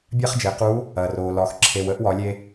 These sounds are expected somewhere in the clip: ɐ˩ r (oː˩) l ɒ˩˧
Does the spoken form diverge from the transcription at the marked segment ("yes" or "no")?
no